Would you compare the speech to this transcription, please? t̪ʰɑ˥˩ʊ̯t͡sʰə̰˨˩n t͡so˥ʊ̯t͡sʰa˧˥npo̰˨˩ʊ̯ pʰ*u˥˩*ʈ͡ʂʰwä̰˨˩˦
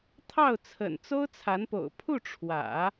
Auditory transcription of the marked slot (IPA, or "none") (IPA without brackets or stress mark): u˥˩